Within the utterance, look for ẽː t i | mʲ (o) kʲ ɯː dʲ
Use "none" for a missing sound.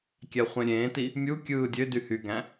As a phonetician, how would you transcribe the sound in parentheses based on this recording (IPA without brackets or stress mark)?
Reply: u